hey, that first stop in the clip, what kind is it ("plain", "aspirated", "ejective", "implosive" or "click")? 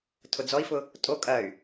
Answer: aspirated